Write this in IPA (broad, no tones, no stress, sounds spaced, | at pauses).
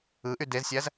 ɯ ʔ y d e z sʲ æ z